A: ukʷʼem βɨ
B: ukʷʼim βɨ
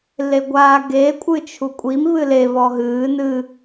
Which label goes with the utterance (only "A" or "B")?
B